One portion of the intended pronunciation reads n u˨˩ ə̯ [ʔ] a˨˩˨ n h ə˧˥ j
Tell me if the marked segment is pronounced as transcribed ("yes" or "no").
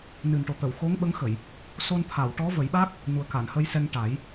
no